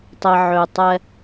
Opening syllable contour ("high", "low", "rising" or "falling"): low